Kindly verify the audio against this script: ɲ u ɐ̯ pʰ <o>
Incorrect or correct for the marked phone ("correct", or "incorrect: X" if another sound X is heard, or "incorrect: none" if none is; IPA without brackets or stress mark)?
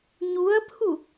incorrect: u